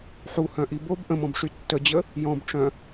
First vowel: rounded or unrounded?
rounded